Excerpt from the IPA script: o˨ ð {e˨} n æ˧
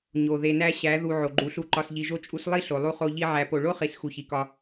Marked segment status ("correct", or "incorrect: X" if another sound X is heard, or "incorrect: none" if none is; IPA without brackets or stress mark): correct